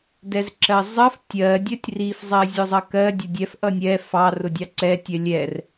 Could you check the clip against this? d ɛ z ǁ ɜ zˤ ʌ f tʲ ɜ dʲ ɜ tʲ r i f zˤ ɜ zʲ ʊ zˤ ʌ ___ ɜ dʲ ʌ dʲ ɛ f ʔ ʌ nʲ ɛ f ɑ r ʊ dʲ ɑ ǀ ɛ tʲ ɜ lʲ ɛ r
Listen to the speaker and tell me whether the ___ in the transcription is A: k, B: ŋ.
A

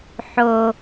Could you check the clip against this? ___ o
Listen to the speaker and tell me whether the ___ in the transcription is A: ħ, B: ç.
A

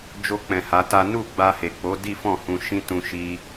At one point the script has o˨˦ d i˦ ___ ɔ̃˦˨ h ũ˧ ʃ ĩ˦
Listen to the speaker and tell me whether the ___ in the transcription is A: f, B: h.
A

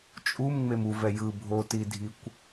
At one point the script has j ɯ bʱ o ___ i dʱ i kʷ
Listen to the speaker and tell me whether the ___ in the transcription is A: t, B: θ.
A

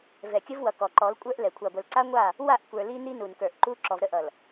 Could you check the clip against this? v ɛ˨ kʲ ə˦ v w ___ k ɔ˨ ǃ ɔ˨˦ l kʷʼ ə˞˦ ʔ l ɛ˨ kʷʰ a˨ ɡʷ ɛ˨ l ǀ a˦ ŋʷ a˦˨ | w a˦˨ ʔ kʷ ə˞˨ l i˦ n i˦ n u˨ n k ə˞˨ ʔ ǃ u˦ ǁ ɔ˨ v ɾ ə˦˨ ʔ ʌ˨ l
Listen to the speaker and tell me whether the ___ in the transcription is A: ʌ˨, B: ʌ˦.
A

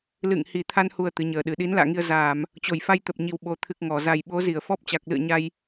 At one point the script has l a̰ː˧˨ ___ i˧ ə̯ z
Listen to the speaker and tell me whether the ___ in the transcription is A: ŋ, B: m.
A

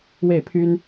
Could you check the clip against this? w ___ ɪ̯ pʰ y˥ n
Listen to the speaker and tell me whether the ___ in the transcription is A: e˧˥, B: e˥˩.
B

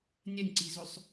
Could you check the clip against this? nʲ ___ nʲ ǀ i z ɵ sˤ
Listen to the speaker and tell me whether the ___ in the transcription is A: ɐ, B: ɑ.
A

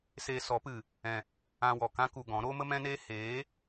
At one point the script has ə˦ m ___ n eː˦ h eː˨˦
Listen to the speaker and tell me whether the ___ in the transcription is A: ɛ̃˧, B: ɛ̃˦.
B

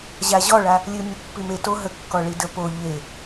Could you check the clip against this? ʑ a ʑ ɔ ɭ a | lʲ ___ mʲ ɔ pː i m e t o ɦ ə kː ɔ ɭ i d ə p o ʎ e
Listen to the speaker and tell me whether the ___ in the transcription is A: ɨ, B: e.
A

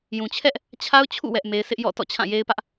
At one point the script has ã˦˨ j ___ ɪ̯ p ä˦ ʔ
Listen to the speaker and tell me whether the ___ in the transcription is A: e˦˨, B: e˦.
B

